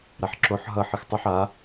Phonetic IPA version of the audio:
ɾ a ħ ǁ o ħ ɦ ʌ ħ ɨ x tˤ ʏ ħ a

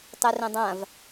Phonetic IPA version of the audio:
tˤ ɛ r ɛ̃ dˤ ã v

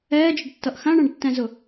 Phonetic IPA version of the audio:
ɛː d͡ʒ ʊ ɖ tː ʌ ʔ x ã ɳ ã ɖ tː ɛ̃ z ʊ

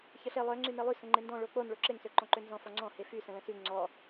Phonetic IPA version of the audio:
ç ə ɬ e lˠ œ ŋ͡ǀ y n e lˠ y s ə̃ ŋ͡ǃ e n d ɔ̃ ɭ o k͡p o n ɭ o ǁ e ŋ s ø ǃ ɔ̃ ǃ ø n z ɔ̃ f ɔ ŋ͡ǀ ɔ̃ h e f y s ə̃ l ə̃ s y ŋ͡ǀ ɔ

